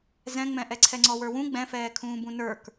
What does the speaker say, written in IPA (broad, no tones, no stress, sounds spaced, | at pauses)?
z ɛ̃ ŋ͡m ɛ̃ ʔ ɛ ǀʰ ɛ ŋ͡ǀ ɔ w ə˞ w ũ ɡ͡b ɛ̃ f ɛː kʰ ũː b ũ n ə˞ k